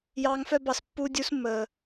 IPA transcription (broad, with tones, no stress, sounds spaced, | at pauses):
j ɑː˧ ŋ f œ˦ b ɑ˧ s pː uː˦ dʲ u˧ s mː əː˨